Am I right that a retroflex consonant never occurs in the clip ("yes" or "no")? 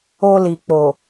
yes